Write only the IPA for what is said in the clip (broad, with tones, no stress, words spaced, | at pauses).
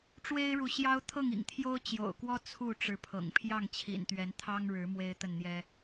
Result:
ʈ͡ʂwe˦ɪ̯ɻu˨ɕjɑ˦ʊ̯ t̪ʰɤ˥˨ŋḭ˨˩ŋ t̪ʰjo˦ʊ̯t͡ɕjo̰˨˩ʊ̯kwɔ˦ t͡sʰu˥˨ʈ͡ʂɻ̩˨˦pʰɤ̰˨˩ŋ pʰjɑ˥˨ŋt͡ɕʰḭ˨˩nt̪ɥɛ˨˦nt̪ʰɑ˦ŋ ɻɻ̩˨˦ mwe˦ɪ̯t̪ə˥˨nn̪jɛ˦